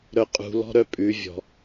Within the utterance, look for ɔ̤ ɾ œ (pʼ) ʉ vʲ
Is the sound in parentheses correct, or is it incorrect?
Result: correct